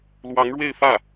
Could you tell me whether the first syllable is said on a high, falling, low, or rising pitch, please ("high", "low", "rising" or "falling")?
rising